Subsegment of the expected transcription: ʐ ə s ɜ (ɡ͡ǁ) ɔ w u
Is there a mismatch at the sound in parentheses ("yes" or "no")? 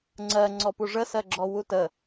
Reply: no